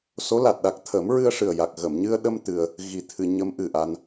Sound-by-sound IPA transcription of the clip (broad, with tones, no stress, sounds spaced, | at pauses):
s o˧˥ l a˨˩ t̚ ɗ a˨˩ k̚ t̪ʰ ə˨˩˦ m ɹ ɨ˧ ə̯ ʂ ɨ˨˩ ə̯ j a˨˩ k̚ ɣ ə˨˩˨ m ɲ ɨ˧ ə̯ ɗ ə˧ m t̪ ɨ˧ ə̯ | ɣ i˨˩ t̪ʰ ɨ˨˩˨ ɲ ə˧˥ m ʔ ɨ˨˩ ʔ a˧ n